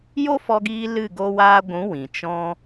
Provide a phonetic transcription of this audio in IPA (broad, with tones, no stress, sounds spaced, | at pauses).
j o˦ f ɔ˧ ɡ iː˧ l ɨ˦˨ ɡ o˧ w aː˧ ɡʷ ũ˨˦ w ĩ˨ t͡ʃ ɔ̃˧